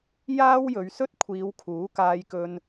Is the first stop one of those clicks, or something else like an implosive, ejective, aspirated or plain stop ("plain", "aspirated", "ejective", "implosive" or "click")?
plain